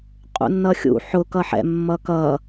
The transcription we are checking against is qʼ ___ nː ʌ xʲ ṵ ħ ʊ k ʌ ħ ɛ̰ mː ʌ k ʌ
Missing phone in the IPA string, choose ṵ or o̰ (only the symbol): ṵ